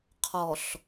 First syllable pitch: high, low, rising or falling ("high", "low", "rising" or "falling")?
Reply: low